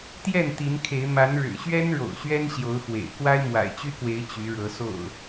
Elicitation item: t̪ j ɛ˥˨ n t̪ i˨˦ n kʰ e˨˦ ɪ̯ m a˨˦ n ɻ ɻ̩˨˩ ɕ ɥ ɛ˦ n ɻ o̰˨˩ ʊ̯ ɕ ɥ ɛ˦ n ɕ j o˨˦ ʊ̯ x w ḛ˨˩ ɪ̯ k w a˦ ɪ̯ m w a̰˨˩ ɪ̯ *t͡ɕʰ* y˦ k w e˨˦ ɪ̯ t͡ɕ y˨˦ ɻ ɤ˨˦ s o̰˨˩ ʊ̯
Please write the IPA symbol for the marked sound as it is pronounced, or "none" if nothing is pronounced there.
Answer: t͡ɕ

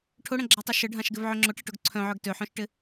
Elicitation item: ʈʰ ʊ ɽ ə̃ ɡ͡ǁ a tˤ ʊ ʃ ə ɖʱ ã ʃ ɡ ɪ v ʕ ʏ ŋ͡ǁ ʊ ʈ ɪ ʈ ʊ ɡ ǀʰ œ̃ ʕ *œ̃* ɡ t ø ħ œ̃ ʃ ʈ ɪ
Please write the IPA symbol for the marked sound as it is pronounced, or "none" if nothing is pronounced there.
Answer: œ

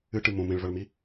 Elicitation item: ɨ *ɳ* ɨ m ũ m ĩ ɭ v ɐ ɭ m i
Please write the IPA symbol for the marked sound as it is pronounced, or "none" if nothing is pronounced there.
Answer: ʈ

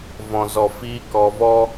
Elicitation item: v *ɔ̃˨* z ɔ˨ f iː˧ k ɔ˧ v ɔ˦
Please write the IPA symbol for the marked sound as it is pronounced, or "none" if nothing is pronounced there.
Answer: ɔ̃˨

